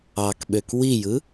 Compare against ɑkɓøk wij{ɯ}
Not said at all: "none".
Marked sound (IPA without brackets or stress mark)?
ɯ